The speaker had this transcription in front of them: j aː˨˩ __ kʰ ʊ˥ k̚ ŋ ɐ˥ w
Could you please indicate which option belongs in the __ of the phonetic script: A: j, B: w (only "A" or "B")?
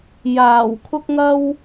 B